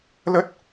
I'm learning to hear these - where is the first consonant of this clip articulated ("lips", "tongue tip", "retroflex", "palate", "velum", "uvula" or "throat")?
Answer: tongue tip